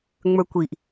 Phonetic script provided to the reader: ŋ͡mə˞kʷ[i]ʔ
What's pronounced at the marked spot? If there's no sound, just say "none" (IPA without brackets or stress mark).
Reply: i